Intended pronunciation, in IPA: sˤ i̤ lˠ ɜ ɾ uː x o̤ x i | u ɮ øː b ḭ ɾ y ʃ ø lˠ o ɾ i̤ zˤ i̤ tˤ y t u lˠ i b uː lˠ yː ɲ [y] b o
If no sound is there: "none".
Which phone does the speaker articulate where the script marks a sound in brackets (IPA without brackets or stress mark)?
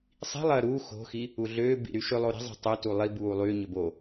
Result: ø